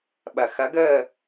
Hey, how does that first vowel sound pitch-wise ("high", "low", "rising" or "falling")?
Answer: low